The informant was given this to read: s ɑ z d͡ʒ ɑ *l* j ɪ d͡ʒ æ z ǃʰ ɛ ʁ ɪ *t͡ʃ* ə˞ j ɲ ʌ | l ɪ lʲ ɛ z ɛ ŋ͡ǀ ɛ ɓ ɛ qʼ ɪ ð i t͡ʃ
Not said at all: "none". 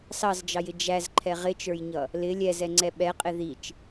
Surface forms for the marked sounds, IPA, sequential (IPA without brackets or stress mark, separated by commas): none, t͡ʃ